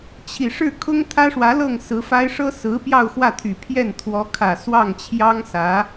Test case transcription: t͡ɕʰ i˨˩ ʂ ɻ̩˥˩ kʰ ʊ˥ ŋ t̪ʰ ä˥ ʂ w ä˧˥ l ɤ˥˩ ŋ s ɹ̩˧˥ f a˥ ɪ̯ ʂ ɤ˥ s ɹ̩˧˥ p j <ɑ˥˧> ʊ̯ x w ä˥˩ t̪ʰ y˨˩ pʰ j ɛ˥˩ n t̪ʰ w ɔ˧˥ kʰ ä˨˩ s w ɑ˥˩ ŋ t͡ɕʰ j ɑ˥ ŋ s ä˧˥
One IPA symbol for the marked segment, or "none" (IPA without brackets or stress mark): ɑ˥˧